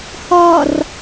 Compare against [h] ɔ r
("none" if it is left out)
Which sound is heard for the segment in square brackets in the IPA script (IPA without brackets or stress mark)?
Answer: h